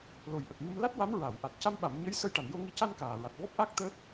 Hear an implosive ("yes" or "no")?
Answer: yes